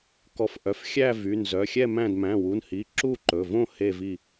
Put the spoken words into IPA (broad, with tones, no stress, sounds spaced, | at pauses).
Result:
k ɔ˧˩ f ʔ œ˩˧˩ f xʲ æ˥˨ v y˩˧˩ n z œ˩˧˩ xʲ ɛ˥˨ m æ̃˥˨ d m æ̃˩˧˩ w u˩˧˩ n h i˩˧˩ ǁ u˥˨ ǃ ɵ˩˧˩ v õ˥˨ h e˥˨ v i˥˨